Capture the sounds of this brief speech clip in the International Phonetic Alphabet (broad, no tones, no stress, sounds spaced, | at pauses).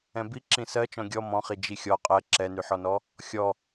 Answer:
ɛ̃ b i ǁ ĩ s ɜ t͡ʃ ɔ̃ ɡʲ ɔ m ɔ̃ χ i d͡ʒ i xʲ ɔ qʼ ɜ ǁ ɛ n y ħ ɔ n ɔ | xʲ ɔ